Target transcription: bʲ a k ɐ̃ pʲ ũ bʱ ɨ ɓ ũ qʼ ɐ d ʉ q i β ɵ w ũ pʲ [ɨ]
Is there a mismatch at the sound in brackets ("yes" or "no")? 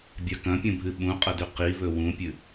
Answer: no